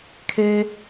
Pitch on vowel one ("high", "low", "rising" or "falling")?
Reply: high